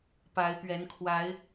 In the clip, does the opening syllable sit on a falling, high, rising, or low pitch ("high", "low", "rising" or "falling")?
rising